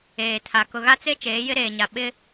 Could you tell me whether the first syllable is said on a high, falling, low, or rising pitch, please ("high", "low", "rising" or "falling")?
low